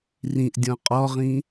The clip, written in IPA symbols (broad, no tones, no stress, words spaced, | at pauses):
rĩʔ dʲɔ̃qʼɔʁĩ